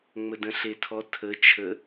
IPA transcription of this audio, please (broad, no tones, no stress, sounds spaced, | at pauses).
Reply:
ŋ͡m ə d ə̃ ɬ e tʰ ɔ tʰ ə t͡ʃʰ ə